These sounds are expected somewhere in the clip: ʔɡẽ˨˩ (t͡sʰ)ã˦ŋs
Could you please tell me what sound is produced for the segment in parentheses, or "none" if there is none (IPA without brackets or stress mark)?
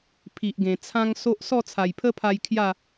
t͡sʰ